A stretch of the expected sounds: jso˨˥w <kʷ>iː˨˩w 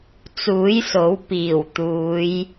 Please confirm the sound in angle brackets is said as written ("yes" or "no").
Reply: no